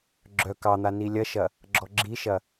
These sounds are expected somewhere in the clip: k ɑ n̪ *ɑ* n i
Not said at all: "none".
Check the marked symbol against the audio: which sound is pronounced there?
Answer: a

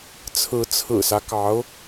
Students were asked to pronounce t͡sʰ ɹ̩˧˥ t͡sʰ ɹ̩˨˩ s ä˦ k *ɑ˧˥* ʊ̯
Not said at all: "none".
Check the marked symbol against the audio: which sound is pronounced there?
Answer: ɑ˧˥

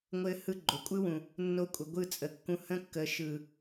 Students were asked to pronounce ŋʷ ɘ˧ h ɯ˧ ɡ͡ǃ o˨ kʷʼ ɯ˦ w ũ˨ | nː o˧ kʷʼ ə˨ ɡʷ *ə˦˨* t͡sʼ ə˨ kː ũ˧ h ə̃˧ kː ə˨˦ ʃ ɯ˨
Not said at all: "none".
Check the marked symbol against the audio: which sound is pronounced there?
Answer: ɯ˦˨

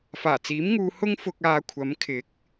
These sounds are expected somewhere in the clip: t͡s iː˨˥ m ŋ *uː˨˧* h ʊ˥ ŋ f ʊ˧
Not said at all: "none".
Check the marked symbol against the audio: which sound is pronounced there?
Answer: uː˨˧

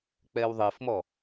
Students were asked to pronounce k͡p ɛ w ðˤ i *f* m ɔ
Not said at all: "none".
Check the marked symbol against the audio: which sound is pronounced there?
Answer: f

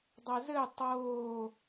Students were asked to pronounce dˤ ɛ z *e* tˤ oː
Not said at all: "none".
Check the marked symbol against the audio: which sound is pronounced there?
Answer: ɘ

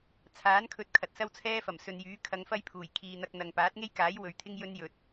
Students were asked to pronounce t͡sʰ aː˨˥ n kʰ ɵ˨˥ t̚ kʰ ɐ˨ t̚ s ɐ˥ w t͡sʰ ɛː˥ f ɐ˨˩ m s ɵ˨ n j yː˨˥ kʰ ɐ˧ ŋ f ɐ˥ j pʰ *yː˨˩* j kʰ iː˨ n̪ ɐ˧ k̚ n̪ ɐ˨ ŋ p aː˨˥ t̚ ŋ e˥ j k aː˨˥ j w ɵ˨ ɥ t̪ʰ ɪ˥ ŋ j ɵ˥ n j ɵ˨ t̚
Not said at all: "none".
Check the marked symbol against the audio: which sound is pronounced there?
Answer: uː˨˩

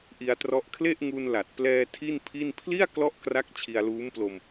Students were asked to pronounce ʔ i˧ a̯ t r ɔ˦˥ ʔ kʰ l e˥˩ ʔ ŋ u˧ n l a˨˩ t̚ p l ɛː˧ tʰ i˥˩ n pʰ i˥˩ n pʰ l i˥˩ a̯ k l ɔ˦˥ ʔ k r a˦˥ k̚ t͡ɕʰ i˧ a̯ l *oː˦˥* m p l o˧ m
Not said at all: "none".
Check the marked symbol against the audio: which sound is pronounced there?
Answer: uː˦˥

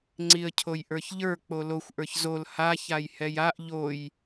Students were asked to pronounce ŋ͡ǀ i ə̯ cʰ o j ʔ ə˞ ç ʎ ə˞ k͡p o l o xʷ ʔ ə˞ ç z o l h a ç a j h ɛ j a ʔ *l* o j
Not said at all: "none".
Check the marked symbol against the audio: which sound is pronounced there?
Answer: ʎ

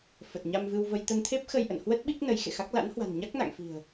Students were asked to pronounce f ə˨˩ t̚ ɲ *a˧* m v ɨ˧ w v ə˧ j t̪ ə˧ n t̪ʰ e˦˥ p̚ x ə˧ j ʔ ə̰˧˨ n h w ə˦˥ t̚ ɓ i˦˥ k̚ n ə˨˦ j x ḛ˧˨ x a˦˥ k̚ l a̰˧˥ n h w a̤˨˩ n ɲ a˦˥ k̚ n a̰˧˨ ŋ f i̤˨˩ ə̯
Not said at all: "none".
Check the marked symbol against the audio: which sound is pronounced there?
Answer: a˧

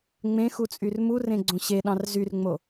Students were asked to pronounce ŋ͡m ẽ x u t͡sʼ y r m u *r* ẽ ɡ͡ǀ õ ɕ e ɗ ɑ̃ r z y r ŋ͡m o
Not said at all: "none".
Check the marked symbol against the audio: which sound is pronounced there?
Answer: r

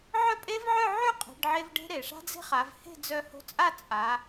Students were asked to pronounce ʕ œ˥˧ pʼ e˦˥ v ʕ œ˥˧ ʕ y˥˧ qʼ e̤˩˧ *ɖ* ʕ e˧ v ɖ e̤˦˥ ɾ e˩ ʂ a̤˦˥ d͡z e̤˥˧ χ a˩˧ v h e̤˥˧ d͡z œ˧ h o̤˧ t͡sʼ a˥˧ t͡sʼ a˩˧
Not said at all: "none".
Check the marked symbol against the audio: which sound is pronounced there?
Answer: ɖ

